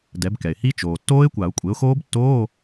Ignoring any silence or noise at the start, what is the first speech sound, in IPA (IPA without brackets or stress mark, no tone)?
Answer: d